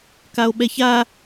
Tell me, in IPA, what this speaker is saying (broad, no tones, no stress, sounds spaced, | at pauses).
k a o̯ ɓ ɛ ç a